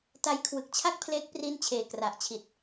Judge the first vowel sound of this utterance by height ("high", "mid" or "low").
low